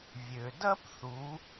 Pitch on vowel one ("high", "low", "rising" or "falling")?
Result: low